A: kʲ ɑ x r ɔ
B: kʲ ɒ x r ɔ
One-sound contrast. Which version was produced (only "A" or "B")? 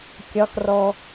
B